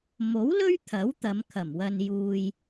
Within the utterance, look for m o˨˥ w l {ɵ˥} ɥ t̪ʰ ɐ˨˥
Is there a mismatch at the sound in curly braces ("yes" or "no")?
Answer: no